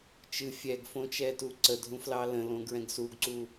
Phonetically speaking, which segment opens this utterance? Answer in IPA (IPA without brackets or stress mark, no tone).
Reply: t͡ʃ